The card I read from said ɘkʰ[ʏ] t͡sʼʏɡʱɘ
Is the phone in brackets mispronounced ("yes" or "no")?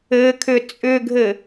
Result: no